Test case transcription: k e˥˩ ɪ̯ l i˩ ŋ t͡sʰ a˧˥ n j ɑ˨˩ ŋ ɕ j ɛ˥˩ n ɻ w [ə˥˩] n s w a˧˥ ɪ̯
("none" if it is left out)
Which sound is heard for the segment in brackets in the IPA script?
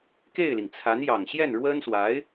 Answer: ə˥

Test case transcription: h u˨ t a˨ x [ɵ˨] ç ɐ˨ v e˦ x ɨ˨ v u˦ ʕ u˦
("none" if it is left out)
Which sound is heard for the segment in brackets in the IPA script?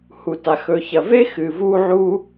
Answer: ɵ˨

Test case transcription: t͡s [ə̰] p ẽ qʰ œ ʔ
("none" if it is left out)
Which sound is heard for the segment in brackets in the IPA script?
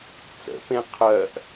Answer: ə̰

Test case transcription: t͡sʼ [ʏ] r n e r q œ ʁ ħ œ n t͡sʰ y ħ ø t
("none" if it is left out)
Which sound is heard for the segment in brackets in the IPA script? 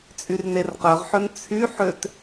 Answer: y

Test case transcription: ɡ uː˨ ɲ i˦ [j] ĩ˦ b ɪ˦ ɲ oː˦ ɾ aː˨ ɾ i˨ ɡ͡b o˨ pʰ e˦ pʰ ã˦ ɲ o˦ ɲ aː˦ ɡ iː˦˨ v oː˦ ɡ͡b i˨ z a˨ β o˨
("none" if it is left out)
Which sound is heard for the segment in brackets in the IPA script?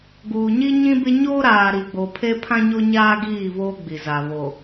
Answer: ɲ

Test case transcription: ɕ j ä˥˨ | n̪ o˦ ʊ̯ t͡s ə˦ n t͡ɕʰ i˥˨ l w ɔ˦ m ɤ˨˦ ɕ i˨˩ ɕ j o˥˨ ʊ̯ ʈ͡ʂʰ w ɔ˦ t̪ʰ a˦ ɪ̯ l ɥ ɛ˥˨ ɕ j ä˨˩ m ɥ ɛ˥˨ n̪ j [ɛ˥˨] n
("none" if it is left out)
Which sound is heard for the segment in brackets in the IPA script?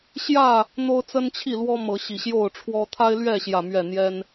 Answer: ɛ˦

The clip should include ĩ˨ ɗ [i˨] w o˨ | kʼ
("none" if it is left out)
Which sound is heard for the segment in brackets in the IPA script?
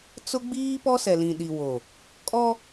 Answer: i˨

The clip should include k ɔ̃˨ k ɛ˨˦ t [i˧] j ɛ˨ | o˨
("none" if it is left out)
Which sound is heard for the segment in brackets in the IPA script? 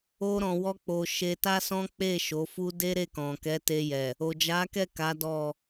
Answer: e˧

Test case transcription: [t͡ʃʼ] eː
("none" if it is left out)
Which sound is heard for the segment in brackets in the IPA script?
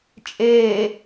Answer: t͡ʃʼ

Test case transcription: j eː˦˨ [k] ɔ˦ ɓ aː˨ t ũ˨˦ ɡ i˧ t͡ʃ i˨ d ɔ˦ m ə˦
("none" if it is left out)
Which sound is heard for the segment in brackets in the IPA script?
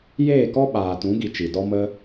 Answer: k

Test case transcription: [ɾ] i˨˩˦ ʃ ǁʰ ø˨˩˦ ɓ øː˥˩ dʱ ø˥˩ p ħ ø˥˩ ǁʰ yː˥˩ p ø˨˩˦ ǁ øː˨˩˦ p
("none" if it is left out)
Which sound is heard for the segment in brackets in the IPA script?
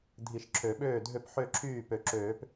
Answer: dʱ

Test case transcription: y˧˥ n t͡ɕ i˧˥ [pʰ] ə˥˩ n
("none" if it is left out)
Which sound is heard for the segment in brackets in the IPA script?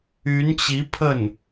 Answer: pʰ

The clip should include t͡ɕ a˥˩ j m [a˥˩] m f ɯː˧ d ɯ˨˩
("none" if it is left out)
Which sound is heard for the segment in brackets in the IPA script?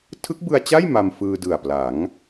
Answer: a˧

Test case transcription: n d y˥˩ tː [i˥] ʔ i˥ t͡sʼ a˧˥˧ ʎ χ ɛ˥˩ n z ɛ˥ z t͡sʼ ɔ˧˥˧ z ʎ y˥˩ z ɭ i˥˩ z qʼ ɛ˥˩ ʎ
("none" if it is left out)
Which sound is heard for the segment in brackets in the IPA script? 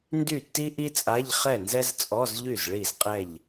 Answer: i˥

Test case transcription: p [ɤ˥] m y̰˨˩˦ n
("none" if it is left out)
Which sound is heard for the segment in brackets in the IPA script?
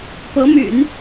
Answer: ɤ˧˥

